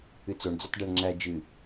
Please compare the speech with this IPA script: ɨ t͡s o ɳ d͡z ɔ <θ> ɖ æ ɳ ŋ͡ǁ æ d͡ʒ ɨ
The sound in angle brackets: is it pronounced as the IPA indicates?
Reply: no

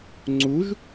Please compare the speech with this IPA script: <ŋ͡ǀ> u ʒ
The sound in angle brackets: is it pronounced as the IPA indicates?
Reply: yes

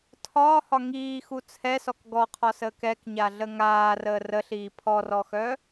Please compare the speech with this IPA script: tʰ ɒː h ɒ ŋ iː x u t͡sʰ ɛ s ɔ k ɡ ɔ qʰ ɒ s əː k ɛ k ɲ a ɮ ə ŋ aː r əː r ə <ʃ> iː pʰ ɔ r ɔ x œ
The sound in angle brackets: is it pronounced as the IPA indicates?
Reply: no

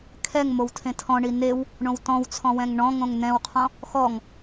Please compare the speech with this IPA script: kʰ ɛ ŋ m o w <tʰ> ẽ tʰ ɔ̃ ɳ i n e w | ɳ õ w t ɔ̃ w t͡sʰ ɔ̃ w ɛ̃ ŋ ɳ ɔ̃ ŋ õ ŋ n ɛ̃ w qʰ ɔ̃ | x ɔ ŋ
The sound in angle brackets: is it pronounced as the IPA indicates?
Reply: yes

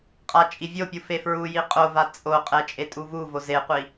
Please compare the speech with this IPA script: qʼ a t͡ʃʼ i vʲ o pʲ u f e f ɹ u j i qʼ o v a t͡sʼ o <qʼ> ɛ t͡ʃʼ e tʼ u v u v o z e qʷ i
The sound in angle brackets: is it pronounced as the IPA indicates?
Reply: yes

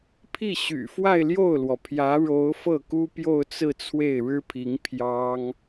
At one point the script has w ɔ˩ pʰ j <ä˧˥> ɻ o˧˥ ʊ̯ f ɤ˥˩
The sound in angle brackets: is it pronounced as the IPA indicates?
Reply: yes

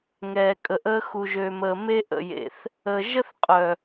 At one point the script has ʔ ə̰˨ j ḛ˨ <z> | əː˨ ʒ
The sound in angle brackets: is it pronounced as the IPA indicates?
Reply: no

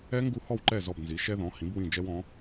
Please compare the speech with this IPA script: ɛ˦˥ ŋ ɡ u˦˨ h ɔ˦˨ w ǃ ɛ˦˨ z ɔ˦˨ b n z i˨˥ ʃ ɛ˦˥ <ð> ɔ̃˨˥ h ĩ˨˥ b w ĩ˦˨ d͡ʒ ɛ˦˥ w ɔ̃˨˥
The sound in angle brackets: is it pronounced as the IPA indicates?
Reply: yes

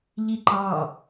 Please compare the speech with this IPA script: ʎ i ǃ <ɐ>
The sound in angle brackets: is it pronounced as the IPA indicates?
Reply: no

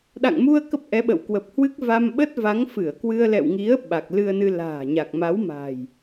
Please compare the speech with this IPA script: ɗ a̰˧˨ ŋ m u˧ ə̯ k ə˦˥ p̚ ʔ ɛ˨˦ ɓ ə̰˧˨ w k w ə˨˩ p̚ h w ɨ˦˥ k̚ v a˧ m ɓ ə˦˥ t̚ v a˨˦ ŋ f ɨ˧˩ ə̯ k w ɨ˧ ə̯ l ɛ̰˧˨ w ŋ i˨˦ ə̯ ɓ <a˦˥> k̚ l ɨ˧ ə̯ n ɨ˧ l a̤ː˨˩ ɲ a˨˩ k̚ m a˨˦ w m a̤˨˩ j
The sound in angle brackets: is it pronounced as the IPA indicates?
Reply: no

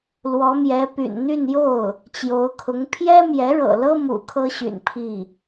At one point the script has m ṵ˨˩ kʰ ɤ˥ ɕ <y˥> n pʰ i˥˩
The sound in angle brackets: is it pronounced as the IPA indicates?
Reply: no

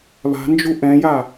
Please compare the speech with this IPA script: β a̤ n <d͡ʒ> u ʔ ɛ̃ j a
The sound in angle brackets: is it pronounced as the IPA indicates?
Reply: yes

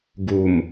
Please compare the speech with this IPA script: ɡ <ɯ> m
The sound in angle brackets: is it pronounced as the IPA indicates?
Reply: no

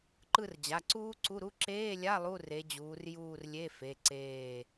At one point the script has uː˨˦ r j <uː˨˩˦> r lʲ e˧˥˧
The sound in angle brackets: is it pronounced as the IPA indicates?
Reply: no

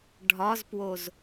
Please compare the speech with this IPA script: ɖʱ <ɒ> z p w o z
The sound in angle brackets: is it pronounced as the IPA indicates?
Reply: yes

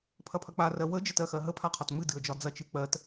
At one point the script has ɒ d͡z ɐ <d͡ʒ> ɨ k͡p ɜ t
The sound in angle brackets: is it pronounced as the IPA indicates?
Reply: no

